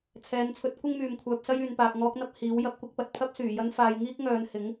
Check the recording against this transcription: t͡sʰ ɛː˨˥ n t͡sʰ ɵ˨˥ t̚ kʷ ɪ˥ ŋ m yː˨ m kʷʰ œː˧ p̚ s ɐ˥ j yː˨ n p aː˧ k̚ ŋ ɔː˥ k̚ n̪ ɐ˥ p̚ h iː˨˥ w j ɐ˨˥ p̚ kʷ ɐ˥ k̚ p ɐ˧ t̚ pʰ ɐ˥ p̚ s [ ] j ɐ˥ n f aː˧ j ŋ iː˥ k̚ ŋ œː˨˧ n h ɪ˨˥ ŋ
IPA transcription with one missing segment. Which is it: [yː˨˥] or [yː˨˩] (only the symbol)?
yː˨˩